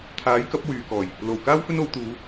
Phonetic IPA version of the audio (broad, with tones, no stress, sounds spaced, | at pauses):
t̪ʰ aː˨˥ j k ɐ˨˥ p̚ w yː˨ k ɔː˨˩ j | l o˨˩ w k aː˥ w f ɵ˥ n o˨˧ w t̪ uː˨˧